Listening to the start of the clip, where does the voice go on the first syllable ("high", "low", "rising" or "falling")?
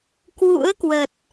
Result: rising